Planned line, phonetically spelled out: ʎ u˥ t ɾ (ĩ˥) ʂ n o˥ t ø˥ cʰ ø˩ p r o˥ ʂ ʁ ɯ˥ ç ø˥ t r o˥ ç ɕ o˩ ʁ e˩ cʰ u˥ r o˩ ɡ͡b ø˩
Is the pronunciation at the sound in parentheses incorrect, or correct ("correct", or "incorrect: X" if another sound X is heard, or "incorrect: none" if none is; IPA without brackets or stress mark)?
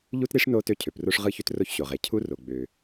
incorrect: i˥